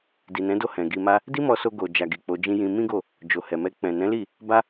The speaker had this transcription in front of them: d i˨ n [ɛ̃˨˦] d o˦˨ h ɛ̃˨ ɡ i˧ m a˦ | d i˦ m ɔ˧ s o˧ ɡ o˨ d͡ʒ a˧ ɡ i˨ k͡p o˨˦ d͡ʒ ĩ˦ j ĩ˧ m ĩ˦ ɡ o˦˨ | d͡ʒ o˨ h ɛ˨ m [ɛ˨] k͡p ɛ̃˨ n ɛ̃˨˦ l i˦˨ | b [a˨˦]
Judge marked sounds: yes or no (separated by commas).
yes, no, no